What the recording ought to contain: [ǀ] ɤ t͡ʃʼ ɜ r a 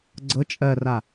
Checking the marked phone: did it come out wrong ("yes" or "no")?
yes